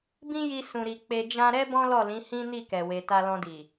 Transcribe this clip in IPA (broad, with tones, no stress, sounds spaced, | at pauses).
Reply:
b ĩ˦ j i˧ s ũ˨ ɾ i˨ k͡p e˧ d͡ʒ ã˧ ɾ ɛ˦ b ɔ̃˦ l ɔ˦˨ l ĩ˨˦ h ĩ˦ n i˦˨ k ɛ˨ w e˨ t a˧ l ɔ̃˧ d i˨